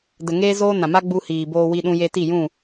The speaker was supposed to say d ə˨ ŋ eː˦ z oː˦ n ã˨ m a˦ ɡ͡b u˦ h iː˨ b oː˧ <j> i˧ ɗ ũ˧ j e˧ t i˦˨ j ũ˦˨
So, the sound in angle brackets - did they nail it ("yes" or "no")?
no